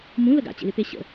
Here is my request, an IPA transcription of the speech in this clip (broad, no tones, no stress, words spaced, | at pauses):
mũlə ɡa̰t͡ɕḛlɪpe ɕə̰